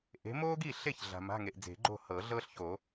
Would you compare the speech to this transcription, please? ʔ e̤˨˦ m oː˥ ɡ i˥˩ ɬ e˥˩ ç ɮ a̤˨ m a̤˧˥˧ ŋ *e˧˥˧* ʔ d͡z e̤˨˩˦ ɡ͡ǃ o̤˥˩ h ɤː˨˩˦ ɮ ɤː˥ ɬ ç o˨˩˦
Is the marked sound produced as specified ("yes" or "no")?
no